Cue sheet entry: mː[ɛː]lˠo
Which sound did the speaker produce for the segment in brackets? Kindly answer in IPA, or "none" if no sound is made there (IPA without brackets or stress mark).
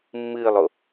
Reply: ɨː